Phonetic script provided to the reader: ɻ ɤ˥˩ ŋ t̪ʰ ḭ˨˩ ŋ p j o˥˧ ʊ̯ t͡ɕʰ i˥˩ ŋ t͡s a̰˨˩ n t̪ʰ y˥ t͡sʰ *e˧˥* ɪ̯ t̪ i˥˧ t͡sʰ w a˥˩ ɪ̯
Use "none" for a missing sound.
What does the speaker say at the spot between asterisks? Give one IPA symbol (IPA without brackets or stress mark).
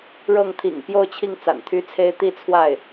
e˥